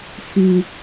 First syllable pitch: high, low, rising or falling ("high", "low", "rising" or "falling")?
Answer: low